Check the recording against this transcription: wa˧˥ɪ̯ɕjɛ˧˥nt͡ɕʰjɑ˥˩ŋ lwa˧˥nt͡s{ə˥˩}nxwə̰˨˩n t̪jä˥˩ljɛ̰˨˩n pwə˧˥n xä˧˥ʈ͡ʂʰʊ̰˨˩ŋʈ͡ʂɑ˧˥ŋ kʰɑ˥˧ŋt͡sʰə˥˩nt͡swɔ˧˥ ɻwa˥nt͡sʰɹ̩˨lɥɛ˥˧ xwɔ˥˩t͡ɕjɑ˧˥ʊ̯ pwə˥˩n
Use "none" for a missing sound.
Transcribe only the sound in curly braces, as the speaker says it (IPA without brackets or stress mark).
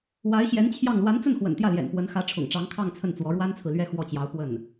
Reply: ə˥˩